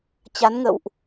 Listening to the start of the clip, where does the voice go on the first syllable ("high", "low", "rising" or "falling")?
rising